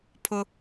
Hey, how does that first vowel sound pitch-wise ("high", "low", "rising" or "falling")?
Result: low